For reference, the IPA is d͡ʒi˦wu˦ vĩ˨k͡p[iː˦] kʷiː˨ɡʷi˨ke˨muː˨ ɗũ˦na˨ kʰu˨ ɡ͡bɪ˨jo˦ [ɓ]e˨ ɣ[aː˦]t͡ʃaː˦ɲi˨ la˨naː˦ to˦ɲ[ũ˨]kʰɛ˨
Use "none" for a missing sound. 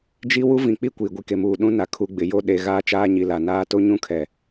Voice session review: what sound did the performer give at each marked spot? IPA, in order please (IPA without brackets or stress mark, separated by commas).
i˦, ɗ, aː˦, ũ˦